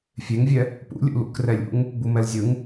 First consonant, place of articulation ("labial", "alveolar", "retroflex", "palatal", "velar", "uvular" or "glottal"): labial